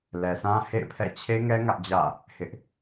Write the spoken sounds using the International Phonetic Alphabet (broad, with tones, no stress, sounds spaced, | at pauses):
l ɛ˨ sʰ ã˦ h ḛ˦˨ ɪ̯ pʰ ɛ̰˦˨ t͡ɕʰ e˦ ŋ ɛ˦ ŋ ä˦ ʔ d͡ʑ ä̰˦˨ | h ɪ˦ ʔ